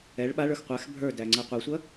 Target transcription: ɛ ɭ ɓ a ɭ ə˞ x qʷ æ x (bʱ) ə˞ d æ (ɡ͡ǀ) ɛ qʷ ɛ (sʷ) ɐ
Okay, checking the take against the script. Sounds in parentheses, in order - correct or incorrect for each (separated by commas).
correct, incorrect, correct